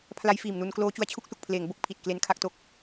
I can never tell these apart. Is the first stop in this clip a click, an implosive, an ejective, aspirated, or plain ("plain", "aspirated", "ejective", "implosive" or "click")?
aspirated